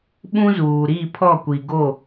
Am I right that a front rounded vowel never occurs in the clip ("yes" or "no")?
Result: yes